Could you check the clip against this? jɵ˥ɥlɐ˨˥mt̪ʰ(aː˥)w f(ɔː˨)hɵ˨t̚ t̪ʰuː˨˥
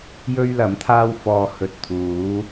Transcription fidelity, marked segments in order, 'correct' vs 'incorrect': correct, incorrect: ɔː˧

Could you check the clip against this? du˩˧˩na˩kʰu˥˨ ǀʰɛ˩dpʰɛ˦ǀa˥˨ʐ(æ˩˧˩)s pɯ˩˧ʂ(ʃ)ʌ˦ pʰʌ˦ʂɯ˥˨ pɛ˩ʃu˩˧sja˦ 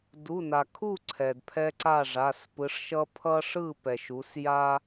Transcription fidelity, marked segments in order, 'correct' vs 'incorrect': incorrect: a˩˧˩, correct

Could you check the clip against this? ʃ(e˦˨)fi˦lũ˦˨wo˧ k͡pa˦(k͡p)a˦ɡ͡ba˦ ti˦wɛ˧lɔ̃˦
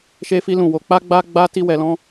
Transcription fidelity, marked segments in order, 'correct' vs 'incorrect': incorrect: e˦, incorrect: ɡ͡b

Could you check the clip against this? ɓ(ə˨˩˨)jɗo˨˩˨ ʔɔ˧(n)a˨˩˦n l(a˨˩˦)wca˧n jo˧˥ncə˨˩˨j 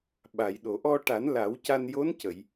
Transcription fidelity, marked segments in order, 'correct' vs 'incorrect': incorrect: a˨˩˨, incorrect: ʈ, correct

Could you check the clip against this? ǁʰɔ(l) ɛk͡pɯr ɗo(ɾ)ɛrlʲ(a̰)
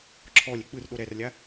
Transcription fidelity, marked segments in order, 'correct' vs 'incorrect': incorrect: lʲ, correct, incorrect: a

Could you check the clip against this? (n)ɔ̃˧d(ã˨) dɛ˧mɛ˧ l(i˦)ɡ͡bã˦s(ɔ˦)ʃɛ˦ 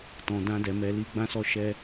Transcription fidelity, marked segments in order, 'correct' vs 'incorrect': incorrect: t, incorrect: ã˦, correct, correct

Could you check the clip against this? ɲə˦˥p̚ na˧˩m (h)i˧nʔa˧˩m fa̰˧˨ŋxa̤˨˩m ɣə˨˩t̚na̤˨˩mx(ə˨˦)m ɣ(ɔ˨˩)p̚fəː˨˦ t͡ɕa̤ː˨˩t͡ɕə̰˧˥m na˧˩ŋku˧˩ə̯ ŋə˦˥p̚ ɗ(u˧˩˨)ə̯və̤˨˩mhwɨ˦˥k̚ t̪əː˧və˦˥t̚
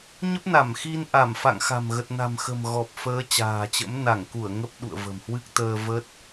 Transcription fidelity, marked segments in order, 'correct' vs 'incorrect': incorrect: x, incorrect: ə̤˨˩, correct, incorrect: ṵ˧˨

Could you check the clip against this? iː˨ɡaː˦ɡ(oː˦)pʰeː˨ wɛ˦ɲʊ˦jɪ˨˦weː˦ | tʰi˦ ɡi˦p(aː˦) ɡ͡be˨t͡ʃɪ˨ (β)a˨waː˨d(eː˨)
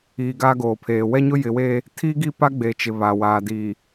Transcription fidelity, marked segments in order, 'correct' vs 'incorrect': incorrect: oː˨, incorrect: a˦, correct, incorrect: iː˨

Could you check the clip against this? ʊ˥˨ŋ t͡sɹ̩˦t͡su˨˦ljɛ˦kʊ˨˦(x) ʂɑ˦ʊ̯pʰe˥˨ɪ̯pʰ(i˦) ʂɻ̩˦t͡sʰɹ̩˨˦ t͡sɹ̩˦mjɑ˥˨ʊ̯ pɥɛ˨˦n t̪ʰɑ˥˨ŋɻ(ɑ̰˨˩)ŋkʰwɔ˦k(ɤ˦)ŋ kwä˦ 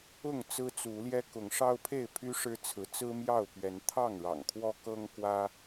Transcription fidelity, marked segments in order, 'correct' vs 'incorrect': incorrect: ŋ, incorrect: y˦, correct, correct

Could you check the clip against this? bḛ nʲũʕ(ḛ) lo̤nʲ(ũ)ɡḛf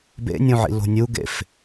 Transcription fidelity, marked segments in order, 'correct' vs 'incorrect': incorrect: ḭ, incorrect: u

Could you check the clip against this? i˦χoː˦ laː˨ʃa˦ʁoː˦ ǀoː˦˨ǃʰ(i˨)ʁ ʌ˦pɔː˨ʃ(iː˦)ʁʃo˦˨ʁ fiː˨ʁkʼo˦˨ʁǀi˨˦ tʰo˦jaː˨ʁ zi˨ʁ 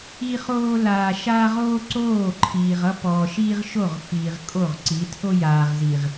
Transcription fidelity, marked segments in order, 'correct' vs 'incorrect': incorrect: iː˨, correct

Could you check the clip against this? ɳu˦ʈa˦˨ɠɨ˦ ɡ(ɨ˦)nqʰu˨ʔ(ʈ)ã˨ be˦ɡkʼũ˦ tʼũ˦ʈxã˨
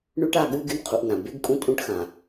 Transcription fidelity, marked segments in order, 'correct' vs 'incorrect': correct, incorrect: n

